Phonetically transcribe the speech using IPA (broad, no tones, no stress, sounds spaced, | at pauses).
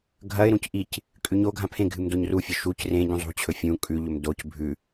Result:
ɡʱ ɐ ɪ̯ ɾ ũ c ʔ i c | kʼ ʉ ɲ o ɡʱ ã pʰ ẽ ɡʱ ɨ m d o ɲ r u fʲ ɵ ʃ u c r ẽ ɟ ũ zˤ ṳ t͡ɕʰ ɵ fʲ ũ kʼ ʉ ʎ ɵ m d o c bʱ ʉ